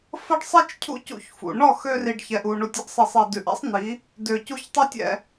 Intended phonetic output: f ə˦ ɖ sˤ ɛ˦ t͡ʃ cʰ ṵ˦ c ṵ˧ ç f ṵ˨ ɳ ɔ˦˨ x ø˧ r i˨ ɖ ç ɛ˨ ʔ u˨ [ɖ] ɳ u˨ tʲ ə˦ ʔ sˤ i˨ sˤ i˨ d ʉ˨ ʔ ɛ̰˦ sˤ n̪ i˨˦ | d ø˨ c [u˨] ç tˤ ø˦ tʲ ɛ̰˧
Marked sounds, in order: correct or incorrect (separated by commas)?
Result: incorrect, incorrect